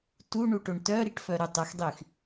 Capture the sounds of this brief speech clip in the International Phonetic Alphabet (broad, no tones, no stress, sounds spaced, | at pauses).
t u ɳ u ʈ o ɳ t œ ɾ i ʈ f œ ɾ u tˤ ə x dˤ y x